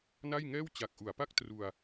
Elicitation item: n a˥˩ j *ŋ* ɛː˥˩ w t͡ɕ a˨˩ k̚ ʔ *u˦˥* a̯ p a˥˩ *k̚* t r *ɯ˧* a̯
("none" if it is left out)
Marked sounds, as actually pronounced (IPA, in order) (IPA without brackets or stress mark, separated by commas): ŋ, u˩˦, k̚, u˧